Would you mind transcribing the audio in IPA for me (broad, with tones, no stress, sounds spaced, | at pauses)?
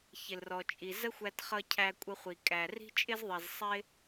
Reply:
ç ɪ˩ l r ɔ˩ t͡ʃʼ i˩ z ə˥ xʷ æ˧ t χ ʌ˧ cʰ æ˧ kʷʼ ə˧ χʷ i˩ kʼ æ˩ r i̤˥ t͡ʃʼ ɪ˥ z ðˤ i˩ z sˤ ɪ˥